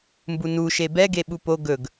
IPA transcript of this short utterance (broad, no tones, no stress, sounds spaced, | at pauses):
m b u n u ʃ e b ɛ ɡ e ɓ u p o ɡ ɵ ɡ